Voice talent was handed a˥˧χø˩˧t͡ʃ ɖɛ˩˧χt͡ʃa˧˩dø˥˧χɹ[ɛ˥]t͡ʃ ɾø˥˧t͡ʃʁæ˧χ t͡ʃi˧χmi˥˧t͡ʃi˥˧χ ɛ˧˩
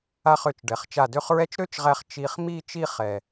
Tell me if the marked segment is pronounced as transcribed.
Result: yes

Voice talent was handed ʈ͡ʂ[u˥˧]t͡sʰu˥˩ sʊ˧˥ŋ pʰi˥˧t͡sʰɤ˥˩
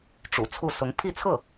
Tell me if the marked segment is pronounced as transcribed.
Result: no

